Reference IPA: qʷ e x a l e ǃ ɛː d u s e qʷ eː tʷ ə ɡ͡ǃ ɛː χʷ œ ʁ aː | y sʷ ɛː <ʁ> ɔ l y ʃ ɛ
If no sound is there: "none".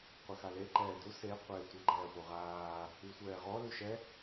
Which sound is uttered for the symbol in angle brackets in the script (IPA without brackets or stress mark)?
ʁ